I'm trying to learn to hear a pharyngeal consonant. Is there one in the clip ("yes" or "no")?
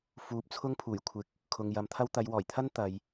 no